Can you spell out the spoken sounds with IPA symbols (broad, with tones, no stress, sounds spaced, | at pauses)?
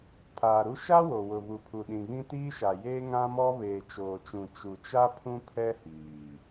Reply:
pʰ aː˨ ɾ u˦ ʃ a˦ w o˨ w ʊ˨ β u˨ pʰ u˨ ɗ ĩ˨ β ĩ˦ t iː˦ ʃ a˨ j eː˦ ŋ ã˦ m ɔ˦ β eː˨ t͡ʃ oː˨ t͡ʃ ũ˨ t͡ʃ u˨ t͡ʃ a˦ pʰ ũ˦ pʰ ɛ˦ h iː˨